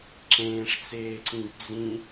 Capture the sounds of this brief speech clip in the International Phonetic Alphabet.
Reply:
ǁ ẽː ʂ t͡s eː ǀ ĩ ɡ d͡z ĩ

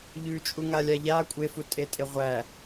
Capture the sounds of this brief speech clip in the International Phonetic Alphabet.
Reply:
ʎ ʉ t͡ʃʼ u ŋ a lʲ a ʎ a kʷʼ e f u tʼ e tʼ e ʁʷ æ

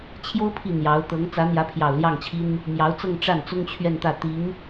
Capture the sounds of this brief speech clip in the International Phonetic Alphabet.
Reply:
t͡ɕʰ j o˥ ʊ̯ pʰ i˥˩ n̪ j ɑ˧˥ ʊ̯ t̪ ɤ˧˥ ŋ t͡s ä˧˥ n̪ j ä˧˥ pʰ j ɑ˨˩ ʊ̯ l j ɑ˥˩ ŋ t͡ɕʰ i˥ n | m j ɑ˧˥ ʊ̯ t͡s ɤ˥˧ ŋ ʈ͡ʂ a˥˩ n t͡s ʊ˥ ŋ t͡ɕʰ ɥ ɛ˥˧ n t̪ ä˥˩ t̪ i˧˥ ŋ

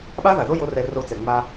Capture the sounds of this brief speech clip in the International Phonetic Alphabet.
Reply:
ɓ a˦ ð a˨ ð o˦ j o˦ r ɛ˧ r o˧ t͡s ɛ˨ ŋ͡m a˧

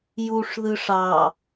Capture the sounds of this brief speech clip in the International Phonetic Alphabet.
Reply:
j u ʂ ð ɯ ʂ ɑ

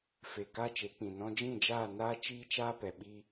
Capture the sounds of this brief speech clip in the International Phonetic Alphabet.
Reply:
f e˨ k aː˦ t͡ʃ e˨˦ k͡p ĩ˨ n ɔ̃˧ d͡ʒ ĩ˦˨ d͡ʒ aː˦˨ n aː˦ t͡ʃ iː˦ t͡ʃ aː˦ p ɛ˨ ɓ iː˦

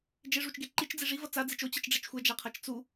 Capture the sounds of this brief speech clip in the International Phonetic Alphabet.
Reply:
d͡ʒ e ʐ u t͡ʃ ɡ e ǃ i t͡ʃ d͡z i ʐ i v ʌ t͡s a d͡z i t͡ʃ o t͡ɕ ɯ t͡ʃ ɖ͡ʐ ɛ t͡ʃ xʷ ɛ d͡ʒ a qʰ a t͡ʃ t͡s u

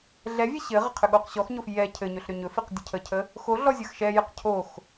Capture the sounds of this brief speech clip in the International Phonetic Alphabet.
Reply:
ɮ ɛ vʲ ɛ ɕ ɘ ʁ ə qʰ ʏ ɠ o q ɕ ɔ x ɲ o f j ɛ cʰ ɘ ɲ ɵ ɬ ɾ ʏ ɲ ɵ f i q dʲ ə cʰ ə cʰ ə | x o ɮ ɔ zʲ ɐ x ʃ ɛ j ɘ q cʰ o x

